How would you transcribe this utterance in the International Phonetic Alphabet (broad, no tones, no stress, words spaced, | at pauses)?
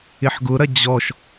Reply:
ɪħɡʊɾɐ d͡ʑɔʃ